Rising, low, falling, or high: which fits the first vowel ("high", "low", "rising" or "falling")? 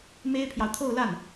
high